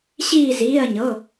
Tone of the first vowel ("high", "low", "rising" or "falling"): falling